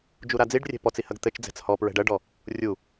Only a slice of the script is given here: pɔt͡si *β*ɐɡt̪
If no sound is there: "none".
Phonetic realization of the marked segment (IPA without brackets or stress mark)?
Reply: h